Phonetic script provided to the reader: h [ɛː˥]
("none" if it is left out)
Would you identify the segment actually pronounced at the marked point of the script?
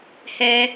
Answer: ɛː˥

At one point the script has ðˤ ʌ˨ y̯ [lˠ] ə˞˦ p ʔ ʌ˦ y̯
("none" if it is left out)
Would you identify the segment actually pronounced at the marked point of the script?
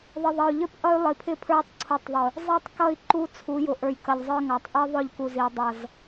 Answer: ʎ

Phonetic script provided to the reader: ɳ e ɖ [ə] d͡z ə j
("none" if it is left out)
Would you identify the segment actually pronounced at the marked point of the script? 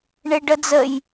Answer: ə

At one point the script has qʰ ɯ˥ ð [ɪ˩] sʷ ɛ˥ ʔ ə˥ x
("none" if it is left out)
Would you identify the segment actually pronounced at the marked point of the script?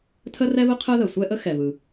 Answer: ə˩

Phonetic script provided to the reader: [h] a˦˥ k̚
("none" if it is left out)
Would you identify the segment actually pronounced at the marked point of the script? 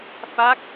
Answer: f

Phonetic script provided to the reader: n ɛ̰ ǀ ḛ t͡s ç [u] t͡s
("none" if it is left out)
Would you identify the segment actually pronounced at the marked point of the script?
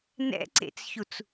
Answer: u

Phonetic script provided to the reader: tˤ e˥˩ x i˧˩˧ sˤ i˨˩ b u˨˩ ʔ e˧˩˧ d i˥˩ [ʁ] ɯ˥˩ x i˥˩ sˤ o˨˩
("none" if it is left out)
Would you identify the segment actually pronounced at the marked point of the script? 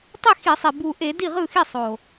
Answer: ʁ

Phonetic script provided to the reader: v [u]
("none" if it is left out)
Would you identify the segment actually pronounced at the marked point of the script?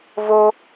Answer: o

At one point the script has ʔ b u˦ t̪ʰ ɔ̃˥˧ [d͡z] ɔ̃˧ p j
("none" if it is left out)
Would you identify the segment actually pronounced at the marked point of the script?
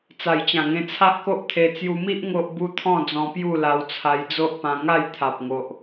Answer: d͡z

